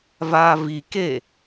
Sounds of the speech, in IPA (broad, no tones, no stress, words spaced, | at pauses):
vaːvike